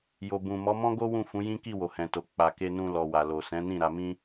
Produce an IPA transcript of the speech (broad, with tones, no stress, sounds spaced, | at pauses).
j o˨ b ũ˨ m ɔ˨˦ m ɔ̃˦ ɡ o˦ w ũ˦˨ f ũ˨˦ j ĩ˦ k i˦˨ w o˨ h ɛ̃˨ t o˨ k͡p a˨ k e˧ n ũ˧ l ɔ˨ w a˨ l o˨ s ɛ̃˨˦ n ĩ˦˨ ɾ a˧ m ĩ˦